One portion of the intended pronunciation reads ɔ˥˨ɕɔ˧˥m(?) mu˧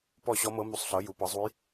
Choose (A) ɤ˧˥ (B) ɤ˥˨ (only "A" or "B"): A